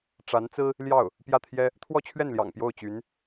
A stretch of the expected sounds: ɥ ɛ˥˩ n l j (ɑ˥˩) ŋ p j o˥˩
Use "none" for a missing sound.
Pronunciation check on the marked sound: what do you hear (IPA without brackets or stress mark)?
ɑ̰˨˩